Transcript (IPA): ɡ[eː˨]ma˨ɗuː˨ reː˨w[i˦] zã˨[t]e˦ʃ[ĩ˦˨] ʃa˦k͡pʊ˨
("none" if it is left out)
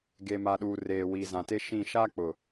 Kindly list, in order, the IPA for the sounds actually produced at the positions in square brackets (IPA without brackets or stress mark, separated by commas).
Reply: e˨, i˨, t, ĩ˦˨